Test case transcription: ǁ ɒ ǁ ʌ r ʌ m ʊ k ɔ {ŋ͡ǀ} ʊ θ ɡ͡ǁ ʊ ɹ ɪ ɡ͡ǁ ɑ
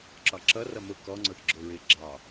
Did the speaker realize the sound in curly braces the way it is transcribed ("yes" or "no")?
yes